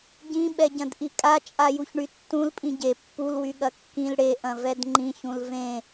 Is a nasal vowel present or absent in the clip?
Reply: present